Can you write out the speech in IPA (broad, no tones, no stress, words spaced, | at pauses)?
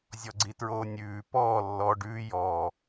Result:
zʲɔɡ͡ǀitɹoːnʲʉː pɔː lːɔ ɖʉː jɔ